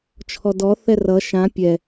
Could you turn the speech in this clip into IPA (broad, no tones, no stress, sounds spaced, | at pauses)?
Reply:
t͡ʃʰ ɔ d ɔ θ ɛ r ʌ ʃ ã pʲ ɛ